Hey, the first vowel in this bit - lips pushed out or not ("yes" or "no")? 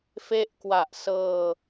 no